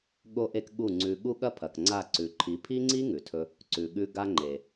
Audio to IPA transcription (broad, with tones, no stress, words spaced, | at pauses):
ɠo˧ʔe˧k ɠu˦˨ŋ͡ǀʉ˧ ɠu˧ ɠɐ˦ pʰɐ˨kŋ͡ǀa˦˨ ǀʉ˨ǃʰi˨˦ pʰi˦ŋ͡ǀi˦ ŋʉ˨tʰɵ˧ | ǀʉ˨ ɠʉ˧ ɡa˧ŋ͡ǃe˨